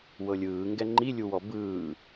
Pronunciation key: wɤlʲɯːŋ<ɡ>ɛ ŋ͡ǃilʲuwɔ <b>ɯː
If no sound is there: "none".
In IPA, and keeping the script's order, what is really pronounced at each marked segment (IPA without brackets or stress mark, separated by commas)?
ɡ, b